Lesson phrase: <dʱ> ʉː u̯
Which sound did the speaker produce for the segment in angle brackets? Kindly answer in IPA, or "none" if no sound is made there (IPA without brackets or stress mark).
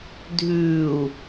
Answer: dʱ